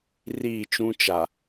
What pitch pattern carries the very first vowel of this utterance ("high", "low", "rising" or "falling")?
falling